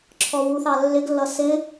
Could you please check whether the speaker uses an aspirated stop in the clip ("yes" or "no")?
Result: yes